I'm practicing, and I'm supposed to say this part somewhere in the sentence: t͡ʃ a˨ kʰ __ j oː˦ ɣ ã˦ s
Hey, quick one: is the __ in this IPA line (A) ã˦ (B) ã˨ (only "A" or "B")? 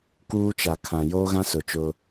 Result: B